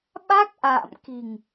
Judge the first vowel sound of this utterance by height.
low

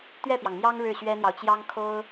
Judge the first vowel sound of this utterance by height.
mid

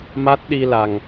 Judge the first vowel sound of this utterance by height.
low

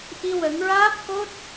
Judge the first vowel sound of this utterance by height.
high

